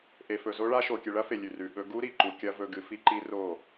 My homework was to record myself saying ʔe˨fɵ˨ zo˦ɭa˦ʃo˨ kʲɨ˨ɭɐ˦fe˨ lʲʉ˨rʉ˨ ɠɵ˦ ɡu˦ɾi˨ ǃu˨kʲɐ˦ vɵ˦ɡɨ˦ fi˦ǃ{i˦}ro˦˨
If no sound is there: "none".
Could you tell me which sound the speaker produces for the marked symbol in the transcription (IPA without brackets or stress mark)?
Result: i˦